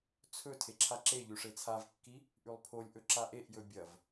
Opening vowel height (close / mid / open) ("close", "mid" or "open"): mid